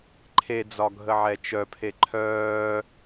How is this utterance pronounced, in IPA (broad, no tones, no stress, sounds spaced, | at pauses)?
ǃʰ e d͡z ɒ ɡʱ ə ʕ ɛ t͡ʃ œ pʰ e ǃʰ œː